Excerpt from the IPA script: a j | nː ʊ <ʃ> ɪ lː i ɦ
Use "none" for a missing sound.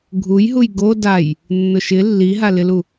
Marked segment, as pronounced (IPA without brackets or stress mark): ʃ